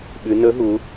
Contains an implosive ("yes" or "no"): yes